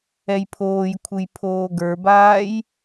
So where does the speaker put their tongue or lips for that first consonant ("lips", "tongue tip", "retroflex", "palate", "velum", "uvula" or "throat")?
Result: palate